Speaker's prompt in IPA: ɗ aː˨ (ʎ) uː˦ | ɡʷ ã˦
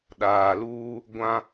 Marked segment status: incorrect: l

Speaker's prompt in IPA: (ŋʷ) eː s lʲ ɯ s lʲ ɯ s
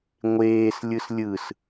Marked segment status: correct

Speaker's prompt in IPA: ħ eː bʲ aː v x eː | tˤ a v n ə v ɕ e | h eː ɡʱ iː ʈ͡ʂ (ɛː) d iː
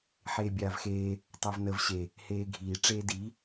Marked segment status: incorrect: eː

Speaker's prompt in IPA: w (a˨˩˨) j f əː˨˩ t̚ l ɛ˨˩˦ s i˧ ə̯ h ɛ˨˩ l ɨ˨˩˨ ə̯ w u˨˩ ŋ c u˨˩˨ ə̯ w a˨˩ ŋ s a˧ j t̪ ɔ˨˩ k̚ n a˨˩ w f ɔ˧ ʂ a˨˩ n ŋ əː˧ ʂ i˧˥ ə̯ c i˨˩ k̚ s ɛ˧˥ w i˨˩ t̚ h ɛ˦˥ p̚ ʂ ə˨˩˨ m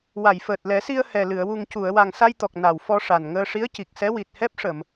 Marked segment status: correct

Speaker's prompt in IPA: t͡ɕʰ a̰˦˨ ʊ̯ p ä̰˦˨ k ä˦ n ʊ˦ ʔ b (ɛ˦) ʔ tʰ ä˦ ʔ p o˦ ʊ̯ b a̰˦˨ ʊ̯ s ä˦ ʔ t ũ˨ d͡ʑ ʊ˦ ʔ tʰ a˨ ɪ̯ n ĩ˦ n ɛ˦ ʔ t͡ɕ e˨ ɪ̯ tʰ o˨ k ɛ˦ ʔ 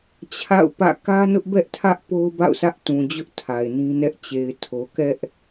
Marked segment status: correct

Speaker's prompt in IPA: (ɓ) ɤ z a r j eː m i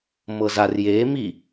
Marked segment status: incorrect: m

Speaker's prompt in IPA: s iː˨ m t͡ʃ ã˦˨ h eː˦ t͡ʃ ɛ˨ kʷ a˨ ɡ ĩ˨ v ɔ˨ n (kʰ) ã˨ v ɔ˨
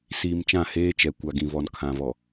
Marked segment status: correct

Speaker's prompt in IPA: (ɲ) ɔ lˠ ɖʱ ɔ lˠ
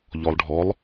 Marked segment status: incorrect: ʎ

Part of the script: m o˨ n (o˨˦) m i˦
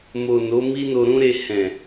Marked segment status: correct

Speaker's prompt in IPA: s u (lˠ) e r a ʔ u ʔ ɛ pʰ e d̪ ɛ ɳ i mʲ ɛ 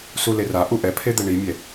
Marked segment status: incorrect: l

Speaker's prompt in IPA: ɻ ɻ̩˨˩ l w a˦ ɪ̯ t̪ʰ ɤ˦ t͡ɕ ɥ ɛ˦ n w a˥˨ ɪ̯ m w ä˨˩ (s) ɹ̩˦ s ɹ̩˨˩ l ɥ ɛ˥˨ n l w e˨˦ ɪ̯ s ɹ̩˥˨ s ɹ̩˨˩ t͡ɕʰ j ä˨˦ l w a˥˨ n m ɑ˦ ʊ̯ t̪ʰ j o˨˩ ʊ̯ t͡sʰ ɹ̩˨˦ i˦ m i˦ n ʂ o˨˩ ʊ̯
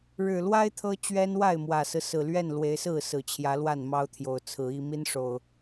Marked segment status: correct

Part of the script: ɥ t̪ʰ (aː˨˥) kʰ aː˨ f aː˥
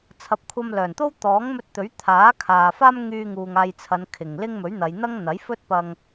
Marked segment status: correct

